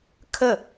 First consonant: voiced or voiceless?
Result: voiceless